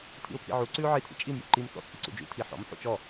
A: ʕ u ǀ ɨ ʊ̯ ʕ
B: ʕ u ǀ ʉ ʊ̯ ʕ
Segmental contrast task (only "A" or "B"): B